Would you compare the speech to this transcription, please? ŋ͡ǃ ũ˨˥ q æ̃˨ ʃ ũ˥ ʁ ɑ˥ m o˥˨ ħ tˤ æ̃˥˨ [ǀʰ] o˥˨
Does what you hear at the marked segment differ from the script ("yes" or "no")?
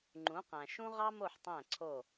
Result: no